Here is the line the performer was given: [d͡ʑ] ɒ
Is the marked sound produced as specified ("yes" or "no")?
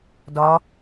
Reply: no